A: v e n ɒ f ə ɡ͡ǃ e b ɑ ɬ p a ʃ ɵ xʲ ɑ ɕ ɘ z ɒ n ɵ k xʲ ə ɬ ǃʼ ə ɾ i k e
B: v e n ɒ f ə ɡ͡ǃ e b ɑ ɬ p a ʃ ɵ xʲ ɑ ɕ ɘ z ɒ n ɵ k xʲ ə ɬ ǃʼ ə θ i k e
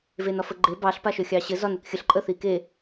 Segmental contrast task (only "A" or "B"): B